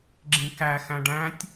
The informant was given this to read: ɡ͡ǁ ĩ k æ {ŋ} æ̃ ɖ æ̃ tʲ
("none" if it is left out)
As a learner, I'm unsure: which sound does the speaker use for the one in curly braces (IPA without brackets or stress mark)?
x